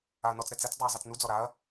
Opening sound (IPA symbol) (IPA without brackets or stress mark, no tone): a